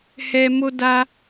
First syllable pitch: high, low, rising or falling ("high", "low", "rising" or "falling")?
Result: low